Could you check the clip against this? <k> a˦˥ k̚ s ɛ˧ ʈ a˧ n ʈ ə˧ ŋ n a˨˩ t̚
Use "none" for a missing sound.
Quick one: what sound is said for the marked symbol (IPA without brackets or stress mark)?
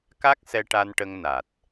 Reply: k